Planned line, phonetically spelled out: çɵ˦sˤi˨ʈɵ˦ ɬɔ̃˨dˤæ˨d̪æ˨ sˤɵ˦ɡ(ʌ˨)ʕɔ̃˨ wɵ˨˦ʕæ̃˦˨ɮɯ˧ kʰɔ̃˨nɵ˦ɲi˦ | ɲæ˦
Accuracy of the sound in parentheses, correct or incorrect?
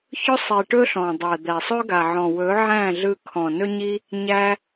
incorrect